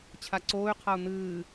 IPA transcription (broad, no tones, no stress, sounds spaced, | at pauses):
t͡ɕʰ a ǀ oː y̯ qʰ a u̯ n̪ ɨː